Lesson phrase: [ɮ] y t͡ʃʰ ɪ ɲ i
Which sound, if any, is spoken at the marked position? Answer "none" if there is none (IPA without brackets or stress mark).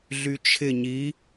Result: ɮ